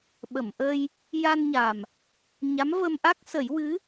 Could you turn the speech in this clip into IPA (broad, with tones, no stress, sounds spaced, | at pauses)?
ɓ ə˨˩˨ m ʔ ə˧ j | j a˧ n ɲ a˨˩ m | ɲ a˧˥ m v ə˧ m ʔ a˦˥ k̚ s ə˨˩˦ j w ɨ˧˥